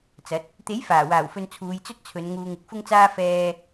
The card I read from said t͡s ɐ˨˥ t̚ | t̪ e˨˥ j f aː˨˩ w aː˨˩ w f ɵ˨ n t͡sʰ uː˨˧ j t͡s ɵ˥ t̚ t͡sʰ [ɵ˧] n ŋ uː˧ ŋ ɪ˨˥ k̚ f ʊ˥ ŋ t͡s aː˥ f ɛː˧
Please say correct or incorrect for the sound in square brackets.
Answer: incorrect